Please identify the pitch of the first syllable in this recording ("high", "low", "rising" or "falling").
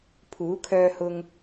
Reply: rising